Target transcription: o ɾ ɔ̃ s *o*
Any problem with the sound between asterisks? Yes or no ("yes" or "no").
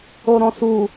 yes